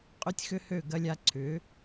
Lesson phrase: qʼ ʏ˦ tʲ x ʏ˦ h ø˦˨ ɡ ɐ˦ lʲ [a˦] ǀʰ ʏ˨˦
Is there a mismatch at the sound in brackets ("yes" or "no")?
no